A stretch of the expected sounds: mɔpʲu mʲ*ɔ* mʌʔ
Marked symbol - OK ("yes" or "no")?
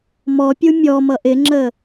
yes